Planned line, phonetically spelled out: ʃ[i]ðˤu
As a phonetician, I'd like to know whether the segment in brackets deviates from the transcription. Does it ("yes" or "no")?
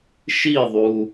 no